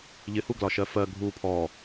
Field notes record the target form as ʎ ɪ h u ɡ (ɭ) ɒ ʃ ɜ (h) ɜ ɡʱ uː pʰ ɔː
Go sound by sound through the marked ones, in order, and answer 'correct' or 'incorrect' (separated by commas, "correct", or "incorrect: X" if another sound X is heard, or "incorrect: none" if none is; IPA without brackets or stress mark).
incorrect: l, incorrect: f